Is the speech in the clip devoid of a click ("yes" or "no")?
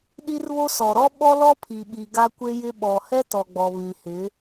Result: yes